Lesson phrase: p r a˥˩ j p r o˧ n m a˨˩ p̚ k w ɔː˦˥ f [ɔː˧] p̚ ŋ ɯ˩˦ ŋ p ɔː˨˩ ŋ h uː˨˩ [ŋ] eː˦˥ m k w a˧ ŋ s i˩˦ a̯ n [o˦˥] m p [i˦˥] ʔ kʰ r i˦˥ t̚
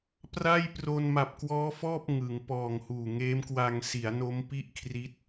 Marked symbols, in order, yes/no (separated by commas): no, yes, yes, no